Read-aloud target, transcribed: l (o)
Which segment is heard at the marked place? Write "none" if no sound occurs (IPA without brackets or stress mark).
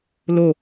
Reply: o